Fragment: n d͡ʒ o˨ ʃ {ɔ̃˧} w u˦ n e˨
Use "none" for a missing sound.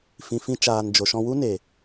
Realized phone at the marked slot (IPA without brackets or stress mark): ɔ̃˧